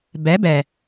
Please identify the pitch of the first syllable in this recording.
rising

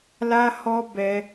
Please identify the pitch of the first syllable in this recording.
high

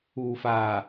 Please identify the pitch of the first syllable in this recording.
low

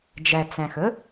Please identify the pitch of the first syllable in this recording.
low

